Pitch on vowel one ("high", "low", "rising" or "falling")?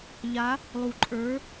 rising